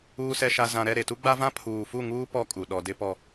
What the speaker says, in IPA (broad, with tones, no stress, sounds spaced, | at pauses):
uː˨ s ɛ˨ ʃ a˨ z ã˨ ɾ ɛ˦˨ ɾ e˨ t u˦ ɡ͡b a˦ v ã˦ pʰ uː˨ f u˦˨ ŋ uː˦ p ɔ˦ kʼ u˨ ɗ ɔ˨ d ɪ˦ p ɔ˦